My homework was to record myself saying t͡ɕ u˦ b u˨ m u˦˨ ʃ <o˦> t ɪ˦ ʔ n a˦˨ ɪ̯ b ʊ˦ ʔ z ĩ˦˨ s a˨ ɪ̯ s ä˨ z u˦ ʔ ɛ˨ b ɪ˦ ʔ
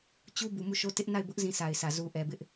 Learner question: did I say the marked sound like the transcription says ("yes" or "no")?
yes